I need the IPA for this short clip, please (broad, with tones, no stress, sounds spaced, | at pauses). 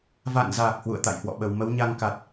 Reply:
v a̰˧˨ n z aː˨˩ k̚ h w ṵ˧˨ ə̯ t̪ a̰˧˨ j h w ɔ̰˧˨ ɓ ə˨˩ w m ə˨˦ w ɲ a˧ ŋ k a˨˩ t̚